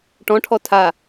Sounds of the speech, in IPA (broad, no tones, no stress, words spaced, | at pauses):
ʈɔ̃ʈʰɔ tʰa